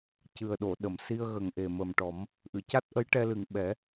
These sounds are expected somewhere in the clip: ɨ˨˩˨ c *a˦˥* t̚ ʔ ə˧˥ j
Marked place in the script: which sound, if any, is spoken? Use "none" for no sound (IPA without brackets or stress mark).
a˦˥